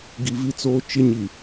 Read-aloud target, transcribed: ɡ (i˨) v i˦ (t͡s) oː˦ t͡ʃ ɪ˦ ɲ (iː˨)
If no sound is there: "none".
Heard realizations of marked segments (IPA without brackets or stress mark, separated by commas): i˨, t͡s, i˨